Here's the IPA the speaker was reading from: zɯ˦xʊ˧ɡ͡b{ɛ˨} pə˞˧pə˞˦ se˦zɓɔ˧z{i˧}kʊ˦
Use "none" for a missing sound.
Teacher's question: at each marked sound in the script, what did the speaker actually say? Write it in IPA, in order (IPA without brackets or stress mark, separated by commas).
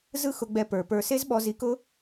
ɛ˧, i˧